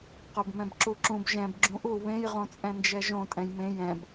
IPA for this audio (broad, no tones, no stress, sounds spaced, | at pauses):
q o b m ɛ̃ b ǁ u ǁ ũ b ʒ ɛ̃ b ɡ͡ǁ ũ ʔ u β ẽ j ʁ õ t͡sʼ ɛ̃ n d͡ʒ ɛ ʒ õ tʼ ɛ̃ j m ẽ j ɛ̃ b